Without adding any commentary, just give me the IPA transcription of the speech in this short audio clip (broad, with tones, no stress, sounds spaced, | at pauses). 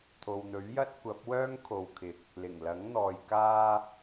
t̪ʰ o˨ w n̪ ɵ˨˥ ɥ j ɐ˥ t̚ kʷ ɐ˨˥ p̚ w œː˥ ŋ kʰ o˨˧ w kʰ ɪ˨ k̚ | l ɪ˨˩ ŋ l ɐ˨˥ ŋ n̪ ɔː˨ j k aː˧